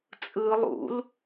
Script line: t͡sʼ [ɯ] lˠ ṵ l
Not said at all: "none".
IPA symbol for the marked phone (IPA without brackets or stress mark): ɯ